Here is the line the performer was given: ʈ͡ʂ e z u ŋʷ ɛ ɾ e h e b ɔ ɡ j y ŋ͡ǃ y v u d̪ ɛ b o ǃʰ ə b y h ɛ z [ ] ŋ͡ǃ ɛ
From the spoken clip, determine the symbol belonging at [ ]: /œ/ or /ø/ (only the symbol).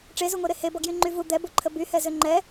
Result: ø